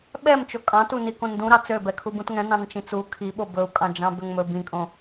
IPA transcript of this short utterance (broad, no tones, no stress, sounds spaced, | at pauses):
ɓ ɛ m t͡ʃ o kʼ ɑ̃ t u n i k õ n d ũ ɾ ɑ t͡s ø b ɛ kʰ u b ũ t ŋ ɛ̃ n ɑ̃ n t͡ʃ ĩ t͡s u kʰ i ɓ o b ɵ u̯ kʼ ɑ̃ d͡ʒ ɑ̃ b ø ŋ m ɵ b ĩ kʼ õ